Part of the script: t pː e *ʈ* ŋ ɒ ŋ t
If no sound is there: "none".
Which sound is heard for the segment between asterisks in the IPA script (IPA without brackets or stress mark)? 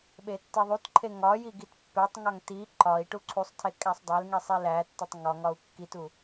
tˤ